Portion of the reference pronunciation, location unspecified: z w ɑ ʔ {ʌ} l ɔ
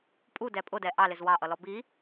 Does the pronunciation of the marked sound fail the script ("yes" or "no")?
no